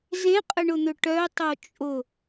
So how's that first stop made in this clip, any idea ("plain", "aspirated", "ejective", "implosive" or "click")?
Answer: ejective